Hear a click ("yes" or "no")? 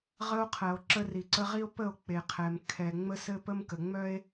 yes